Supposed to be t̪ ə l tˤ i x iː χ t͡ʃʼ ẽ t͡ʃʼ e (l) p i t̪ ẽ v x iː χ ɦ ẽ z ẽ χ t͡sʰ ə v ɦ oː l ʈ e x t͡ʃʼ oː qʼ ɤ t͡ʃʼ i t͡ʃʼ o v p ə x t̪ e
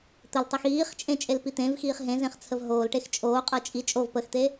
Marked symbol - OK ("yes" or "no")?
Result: yes